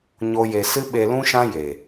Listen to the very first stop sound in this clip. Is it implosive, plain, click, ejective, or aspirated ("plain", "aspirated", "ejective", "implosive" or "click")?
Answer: implosive